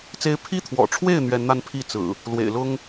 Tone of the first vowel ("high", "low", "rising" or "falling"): high